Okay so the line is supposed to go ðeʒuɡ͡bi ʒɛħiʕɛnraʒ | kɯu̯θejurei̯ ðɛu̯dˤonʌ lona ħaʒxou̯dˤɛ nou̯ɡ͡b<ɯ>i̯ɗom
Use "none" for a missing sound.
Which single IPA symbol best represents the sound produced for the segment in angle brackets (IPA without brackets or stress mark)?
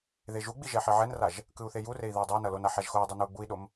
u